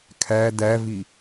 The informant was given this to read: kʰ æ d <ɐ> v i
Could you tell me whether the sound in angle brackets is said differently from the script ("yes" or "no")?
yes